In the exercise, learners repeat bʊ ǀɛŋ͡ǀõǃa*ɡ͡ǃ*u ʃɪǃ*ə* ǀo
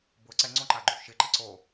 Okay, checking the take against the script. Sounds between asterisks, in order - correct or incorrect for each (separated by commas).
correct, incorrect